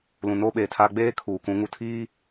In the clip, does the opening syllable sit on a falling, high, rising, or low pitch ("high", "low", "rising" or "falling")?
low